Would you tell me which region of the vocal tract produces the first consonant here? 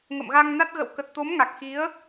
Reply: velum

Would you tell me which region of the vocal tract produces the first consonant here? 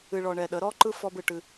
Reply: retroflex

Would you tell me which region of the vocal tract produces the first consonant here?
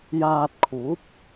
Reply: palate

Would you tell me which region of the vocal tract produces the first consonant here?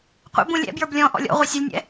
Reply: uvula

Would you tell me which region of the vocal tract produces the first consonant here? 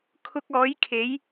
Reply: velum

